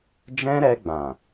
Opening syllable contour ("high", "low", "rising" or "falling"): high